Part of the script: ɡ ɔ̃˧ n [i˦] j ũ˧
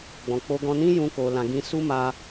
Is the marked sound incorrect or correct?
incorrect